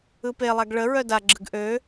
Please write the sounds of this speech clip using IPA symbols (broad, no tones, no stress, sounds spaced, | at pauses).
ɯ p e lˠ a ɡ ɭ ə ɹ œ d a ɡ͡ǁ ɯ ɡ ʔ ø